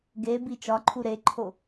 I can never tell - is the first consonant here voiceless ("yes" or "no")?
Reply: no